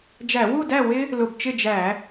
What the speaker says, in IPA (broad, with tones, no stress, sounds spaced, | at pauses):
d͡ʒ æ˧˩˧ w u˥˨ d æ˥˨ w ɪ˦˥ | l ʊ˧˩ b t͡ʃ ɪ˥˨ d͡ʒ æ˧˩˧